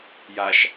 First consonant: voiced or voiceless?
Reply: voiced